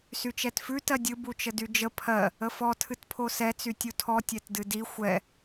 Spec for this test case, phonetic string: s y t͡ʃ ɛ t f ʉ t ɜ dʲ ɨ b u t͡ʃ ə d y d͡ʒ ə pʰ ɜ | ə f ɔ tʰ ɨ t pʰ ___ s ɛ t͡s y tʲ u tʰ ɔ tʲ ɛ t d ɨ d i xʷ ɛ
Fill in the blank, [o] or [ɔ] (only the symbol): o